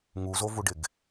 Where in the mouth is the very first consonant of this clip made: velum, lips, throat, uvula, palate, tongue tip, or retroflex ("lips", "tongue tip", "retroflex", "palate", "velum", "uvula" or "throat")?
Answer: velum